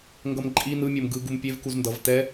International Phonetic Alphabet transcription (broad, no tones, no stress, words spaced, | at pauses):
ŋɡʌmǃʼi nɯmʲom ɡɯ ɡumpʲev kuzndʌv tɛ